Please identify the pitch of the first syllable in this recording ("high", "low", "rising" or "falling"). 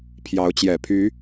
rising